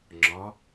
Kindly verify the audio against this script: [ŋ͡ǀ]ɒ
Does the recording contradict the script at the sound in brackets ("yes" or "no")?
yes